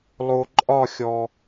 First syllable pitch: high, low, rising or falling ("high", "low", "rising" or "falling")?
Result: low